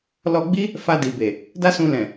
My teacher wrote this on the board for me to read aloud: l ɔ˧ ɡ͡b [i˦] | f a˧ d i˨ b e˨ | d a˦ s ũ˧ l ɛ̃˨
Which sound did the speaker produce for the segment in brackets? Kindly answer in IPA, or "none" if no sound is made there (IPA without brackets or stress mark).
i˦